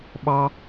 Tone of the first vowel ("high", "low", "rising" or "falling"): high